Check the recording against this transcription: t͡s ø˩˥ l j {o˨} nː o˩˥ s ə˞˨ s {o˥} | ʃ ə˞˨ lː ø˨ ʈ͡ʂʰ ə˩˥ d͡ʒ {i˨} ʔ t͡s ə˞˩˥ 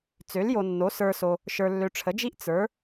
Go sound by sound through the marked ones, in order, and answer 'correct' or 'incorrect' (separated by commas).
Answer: correct, incorrect, incorrect